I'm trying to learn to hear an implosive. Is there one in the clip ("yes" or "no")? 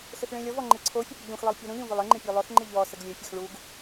no